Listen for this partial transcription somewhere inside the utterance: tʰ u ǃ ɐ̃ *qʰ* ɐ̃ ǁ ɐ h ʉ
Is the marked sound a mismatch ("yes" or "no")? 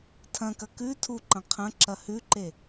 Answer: no